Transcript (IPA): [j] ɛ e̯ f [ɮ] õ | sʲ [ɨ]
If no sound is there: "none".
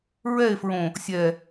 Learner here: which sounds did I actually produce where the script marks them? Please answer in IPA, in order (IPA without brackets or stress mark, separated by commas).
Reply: ɹ, ɹ, ɛ